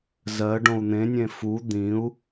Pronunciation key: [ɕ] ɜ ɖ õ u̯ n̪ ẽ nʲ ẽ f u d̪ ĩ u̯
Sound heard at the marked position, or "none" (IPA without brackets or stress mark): z